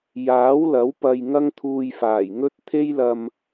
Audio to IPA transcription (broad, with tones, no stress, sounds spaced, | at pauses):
j aː˨˥ w l ɐ˨˥ w p ɐ˧ j ŋ ɐ˥ ŋ t̪ʰ uː˧ j f aː˨˩ j ŋ ɵ˥ t̚ t̪ʰ e˥ j l ɐ˧ m